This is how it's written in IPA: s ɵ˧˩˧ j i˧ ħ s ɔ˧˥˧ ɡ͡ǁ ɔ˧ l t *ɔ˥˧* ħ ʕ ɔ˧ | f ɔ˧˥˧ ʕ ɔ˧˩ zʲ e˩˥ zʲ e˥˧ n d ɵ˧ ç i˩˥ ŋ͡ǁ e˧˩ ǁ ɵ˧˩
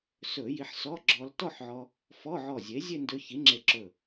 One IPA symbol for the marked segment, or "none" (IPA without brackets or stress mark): ɔ˥˧